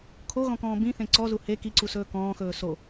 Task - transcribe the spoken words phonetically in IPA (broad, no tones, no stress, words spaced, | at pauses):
kʰoɣɔ̃kɔ̃ː bĩθẽ ǀɔzu he kiǀusɵː kɔ̃ːxɵː so